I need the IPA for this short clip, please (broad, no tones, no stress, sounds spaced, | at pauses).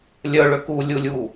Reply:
lʲ œ ɭ ø k u lʲ u lʲ u